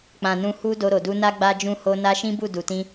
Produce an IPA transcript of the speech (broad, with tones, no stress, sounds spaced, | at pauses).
k͡p ã˨ n ũ˧ h u˦ d o˧ ɾ o˨ d u˧ n a˦ ɡ͡b a˦ d͡ʒ ũ˦ h o˦ n a˦ ʃ ĩ˦ b u˦˨ d u˨ t ĩ˧